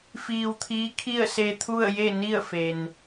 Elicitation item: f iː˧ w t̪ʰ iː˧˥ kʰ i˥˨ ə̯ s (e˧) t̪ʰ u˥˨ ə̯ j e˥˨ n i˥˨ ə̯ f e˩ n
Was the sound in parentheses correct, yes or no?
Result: yes